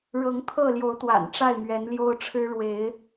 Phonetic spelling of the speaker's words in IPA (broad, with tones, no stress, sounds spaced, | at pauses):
ɻ ɤ˨˦ ŋ t̪ʰ ɤ˥˨ l j o˨˦ ʊ̯ t̪ w a̰˨˩ n ʈ͡ʂ a˥˨ ɪ̯ m ɥ ɛ˨˦ n l j o˦ ʊ̯ ʈ͡ʂʰ ɻ̩˦ ɻ w e˨˦ ɪ̯